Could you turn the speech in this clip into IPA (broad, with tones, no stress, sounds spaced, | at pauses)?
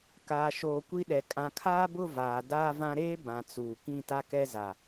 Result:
k aː˨ ʃ oː˨ kʷ i˦ ɗ ɛ˨ kʼ ã˨ kʰ aː˦ b ʊ˦˨ v aː˨ d aː˦ v ã˦ ɾ eː˦ b ã˨ t͡s uː˨ k ĩ˦˨ t a˦ k ɛ˦ z a˨